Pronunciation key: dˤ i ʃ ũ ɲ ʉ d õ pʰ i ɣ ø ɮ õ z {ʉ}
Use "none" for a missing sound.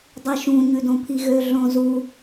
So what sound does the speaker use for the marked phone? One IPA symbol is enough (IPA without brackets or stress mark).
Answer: u